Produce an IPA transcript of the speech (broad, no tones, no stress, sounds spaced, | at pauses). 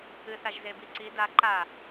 ɨ θ a ʒ z e b i ǀ i d a ǃ a